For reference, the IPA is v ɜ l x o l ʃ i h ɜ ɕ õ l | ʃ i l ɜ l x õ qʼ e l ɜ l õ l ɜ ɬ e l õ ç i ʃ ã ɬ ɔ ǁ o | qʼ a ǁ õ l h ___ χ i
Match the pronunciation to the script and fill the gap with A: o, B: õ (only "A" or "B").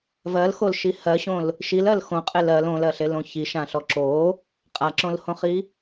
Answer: B